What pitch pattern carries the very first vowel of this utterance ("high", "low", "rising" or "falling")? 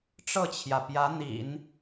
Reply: falling